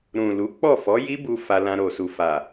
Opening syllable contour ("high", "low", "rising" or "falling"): low